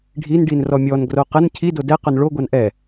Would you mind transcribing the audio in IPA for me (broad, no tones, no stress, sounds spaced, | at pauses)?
ɖʱ i n ɖ i n r ɔ mʲ ɔ n ɡ r o q ə n cʰ i d o d ɛ q o n ɭ o ɡʷ a n ʔ ɛ